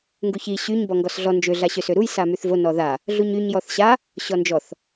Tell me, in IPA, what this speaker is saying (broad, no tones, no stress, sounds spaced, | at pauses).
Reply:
ŋ ɡ u ç i ɕ y ɲ b ɔ ŋ ɡ ɔ s ɮ ɔ n d͡ʒ ø ɮ a ɕ ø s ø ɾ u j s a m y θ v o n ɔ ð a | ɮ u ɲ y ɲ j ɔ θ ɕ a | ɕ ɔ n d͡ʒ ɔ θ